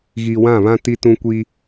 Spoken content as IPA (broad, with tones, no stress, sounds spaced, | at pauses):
ɣ i˨ w ã˦˨ β ã˦ t i˦ t ũ˦ kʷ i˦